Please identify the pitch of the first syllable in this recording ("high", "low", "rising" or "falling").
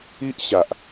high